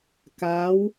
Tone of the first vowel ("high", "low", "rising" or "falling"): rising